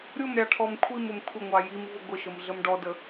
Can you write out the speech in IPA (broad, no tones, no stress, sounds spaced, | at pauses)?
ɾʲ ʊ m ɾʲ ɑ ʈʰ ɔ m kʷʰ i m ʊ m kʷʰ ɪ ŋʷ ɑ j i m v ʊ ɡʷ ɪ ʃ ə m ɮ ə m ɖ ɔ d ə